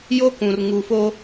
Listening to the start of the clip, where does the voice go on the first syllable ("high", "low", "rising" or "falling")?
high